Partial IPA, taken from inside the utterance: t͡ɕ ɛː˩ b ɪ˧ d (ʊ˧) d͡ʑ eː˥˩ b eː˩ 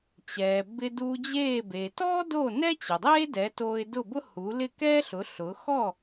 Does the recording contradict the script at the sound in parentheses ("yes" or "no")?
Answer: yes